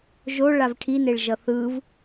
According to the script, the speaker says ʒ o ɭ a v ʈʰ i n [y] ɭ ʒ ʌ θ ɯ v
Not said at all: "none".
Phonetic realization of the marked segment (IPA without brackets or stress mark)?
e